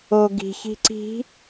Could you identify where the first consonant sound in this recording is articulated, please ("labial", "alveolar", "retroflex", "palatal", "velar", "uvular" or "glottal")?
velar